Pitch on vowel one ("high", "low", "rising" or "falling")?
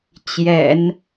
low